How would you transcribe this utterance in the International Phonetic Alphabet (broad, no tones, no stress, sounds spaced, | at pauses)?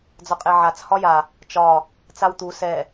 d͡z ɒ qʼ e ʕ a t͡s h ɒ j a | t͡ʃ ɒ | t͡s a w t̪ u s ɛ